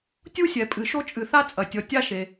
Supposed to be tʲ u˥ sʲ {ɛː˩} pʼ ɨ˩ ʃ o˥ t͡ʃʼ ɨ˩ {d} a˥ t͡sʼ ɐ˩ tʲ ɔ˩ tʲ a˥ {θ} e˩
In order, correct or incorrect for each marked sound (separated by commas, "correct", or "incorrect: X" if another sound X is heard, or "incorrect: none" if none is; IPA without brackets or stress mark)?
incorrect: ɛ˩, incorrect: θ, incorrect: ʃ